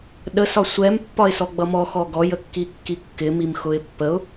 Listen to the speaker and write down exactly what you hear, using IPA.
ɗ ə s ɒ sʷ ɛ m pː ɒ ɪ̯ s ɔ ɡ͡b ʌ m ɔ x ɔ ɡ ɔ j ə kː i kː i kː ɪ m i m x ʊ ɪ̯ pː ə ʊ̯

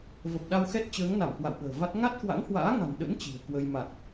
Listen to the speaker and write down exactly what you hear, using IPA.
v ə˨˩ p̚ ɗ a˧ w x ɛ˦˥ t̚ t͡ɕ əː˨˦ ŋ n a˧˩ m k w a̰˧˨ w ɓ ə̤ː˨˩ v a˦˥ t̚ ŋ a˦˥ t̚ k w a̰˧˥ ŋ h w a̰ː˧˥ ŋ a̤˨˩ n ɗ ə̰˧˥ n t͡ɕ i̤˨˩ ə̯ k w ə˧ j m a˨˩ t̚

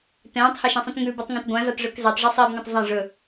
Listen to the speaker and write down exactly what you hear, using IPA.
t ɛ̃ː tˤ h a ʃ ĩ sˤ ĩ t ŋ ʉ b ʉ tˤ ŋ ã t ɡʷ ã z ɒ t ʐ ɵ k z ɛ tˤ ʐ ɐ sˤ iː b ŋ ɛ̃ tˤ zˤ ɐ̃ ʐ ɵ

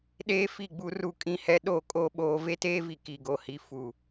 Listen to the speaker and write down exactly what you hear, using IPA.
ɗ eː˦ f i˦˨ ɡ͡b u˦ r u˦ kʼ ĩ˦ h ɛ˦ ɗ o˦˨ kʼ o˦ ɓ oː˦ v e˦ t eː˦ v i˨ k i˨ ɡ o˨ h i˨ f u˨

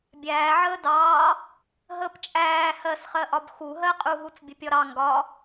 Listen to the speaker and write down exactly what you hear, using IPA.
bʲ æː ʕ əː d ɑː | ɦ əː p t͡ʃʼ æː h ɜ s χ ɜ ʔ ɒ b x u ɦ ɜ qʼ u ɦ u t͡s bʲ ə pʲ ɒ ɾ ɑ ŋ ɡ ɒ

